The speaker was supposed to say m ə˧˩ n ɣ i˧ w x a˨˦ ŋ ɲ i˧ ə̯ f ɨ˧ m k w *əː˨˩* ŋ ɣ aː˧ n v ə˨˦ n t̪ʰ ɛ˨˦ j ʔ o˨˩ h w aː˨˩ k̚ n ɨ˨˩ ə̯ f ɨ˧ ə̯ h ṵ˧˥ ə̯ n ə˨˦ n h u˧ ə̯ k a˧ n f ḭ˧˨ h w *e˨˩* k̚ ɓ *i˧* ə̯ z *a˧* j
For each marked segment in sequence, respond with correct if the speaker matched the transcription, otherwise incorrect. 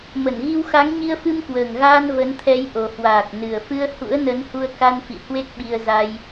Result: correct, incorrect: e˦˥, correct, correct

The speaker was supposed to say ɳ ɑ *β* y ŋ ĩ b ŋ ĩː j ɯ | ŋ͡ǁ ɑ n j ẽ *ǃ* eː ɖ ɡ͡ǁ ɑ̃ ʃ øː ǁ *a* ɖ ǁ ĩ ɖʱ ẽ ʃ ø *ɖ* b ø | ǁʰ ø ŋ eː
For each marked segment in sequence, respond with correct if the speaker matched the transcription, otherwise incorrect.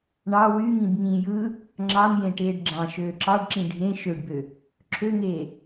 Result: incorrect: w, incorrect: ʈ, incorrect: ɑ, correct

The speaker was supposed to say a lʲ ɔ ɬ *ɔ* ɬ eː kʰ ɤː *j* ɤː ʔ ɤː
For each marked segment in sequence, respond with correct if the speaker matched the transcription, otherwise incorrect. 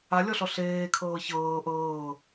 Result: correct, incorrect: ç

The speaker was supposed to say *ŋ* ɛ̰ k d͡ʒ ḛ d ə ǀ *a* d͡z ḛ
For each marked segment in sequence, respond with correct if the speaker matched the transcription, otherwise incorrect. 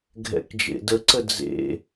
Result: incorrect: ɡʱ, incorrect: ə

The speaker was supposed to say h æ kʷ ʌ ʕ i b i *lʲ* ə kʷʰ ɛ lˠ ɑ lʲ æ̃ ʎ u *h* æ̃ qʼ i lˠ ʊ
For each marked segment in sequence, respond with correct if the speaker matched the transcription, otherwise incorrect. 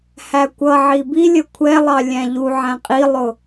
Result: correct, incorrect: ʕ

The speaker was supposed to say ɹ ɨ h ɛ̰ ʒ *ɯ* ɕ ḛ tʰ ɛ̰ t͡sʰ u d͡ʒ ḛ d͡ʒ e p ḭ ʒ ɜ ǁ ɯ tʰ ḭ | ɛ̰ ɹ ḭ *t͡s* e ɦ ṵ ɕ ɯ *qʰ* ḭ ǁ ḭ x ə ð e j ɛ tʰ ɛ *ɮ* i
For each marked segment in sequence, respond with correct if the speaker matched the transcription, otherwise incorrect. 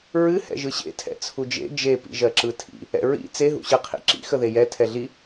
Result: correct, correct, correct, correct

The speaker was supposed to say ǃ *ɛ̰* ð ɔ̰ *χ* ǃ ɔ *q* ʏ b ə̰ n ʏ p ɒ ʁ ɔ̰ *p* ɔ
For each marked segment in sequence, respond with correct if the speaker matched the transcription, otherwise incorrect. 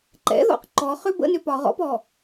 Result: correct, incorrect: q, incorrect: χ, correct

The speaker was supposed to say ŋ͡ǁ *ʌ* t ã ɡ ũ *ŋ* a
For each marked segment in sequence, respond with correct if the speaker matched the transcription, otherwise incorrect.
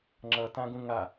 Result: correct, correct

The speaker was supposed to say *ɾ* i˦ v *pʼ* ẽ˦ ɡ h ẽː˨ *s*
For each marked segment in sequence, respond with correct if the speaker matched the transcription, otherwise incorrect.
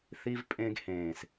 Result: incorrect: θ, correct, correct

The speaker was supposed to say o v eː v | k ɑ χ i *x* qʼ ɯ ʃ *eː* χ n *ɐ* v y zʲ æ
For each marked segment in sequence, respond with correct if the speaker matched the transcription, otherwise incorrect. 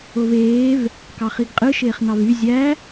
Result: incorrect: ɡ, correct, incorrect: ɑ

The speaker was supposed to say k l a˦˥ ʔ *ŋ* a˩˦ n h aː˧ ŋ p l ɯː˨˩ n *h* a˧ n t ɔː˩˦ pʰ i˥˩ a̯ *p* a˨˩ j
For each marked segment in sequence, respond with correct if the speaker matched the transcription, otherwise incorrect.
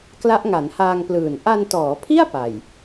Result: correct, incorrect: ʔ, correct

